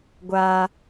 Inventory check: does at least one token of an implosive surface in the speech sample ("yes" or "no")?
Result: no